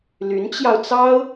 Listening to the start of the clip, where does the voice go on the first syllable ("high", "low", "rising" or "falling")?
rising